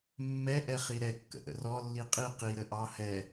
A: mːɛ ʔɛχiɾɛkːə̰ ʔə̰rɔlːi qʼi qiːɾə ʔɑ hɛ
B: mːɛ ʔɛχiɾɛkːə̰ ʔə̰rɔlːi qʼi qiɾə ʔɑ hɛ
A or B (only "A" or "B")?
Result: B